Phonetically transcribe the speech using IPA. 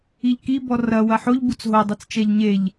i ʎ k i b ɔ r ɐ w ɐ ħ o ʎ b u t͡s ɦ o dˤ e t͡s t͡ʃ ɛ ʎ ɲ e ʎ

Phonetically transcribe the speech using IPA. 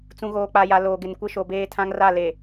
t͡s ũ˨ ɣ oː˨ k͡p a˨ j a˨ l oː˨ ɡ ɪ˨ n kʷ ɪ˦ ʃ o˨ b eː˦ tʰ ã˦ ŋ r a˦˨ l e˨

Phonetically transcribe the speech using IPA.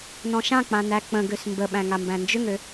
n ɔ̃ ʃ ã k͡p ã n æ k͡p ə̃ ɡ ø s m b ə ɓ æ̃ ŋ a m b æ̃ n d͡ʒ ʏ ŋ ø

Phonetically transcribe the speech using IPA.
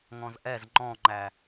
ŋ ɔ̃ z ʔ ɛ z ŋ͡ǃ ɔ̃ ŋ͡ǃ æ

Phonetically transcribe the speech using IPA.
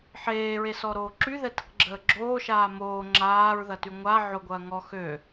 ħ eː ɹ e s ɔ ɾ oː ǁ y ð ɛ t ə k ɡ͡ǁ əː ɡ͡ǁ oː ʃ aː m oː ŋ͡ǁ aː ɹ ð ɐ t y ŋʷ a ʕ ʊ ɡʷ ɐː ŋ ɔ x ø

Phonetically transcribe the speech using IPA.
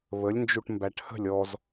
β ə lʲ n d͡ʒ u ʈ m b æ ʈ h ə̤ lʲ ɔ z

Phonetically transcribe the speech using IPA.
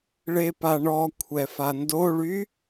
ɭ e p a ɳ ɔ kʷʰ ɛ f a n d o ɭ y

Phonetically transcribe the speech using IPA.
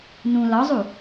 n ũ l ɒ zˤ u

